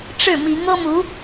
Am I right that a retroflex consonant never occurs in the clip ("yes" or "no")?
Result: no